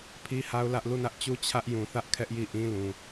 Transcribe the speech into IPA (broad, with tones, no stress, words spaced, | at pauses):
pʰi˦ha˦ʊ̯ lä˦ʔ lu˦˨nä˦ʔ t͡ɕu˦ t͡ɕʰä˦ʔjũ˨θä˦ʔ kʰɛ˦ʔji˦˨ʔĩ˦lũ˨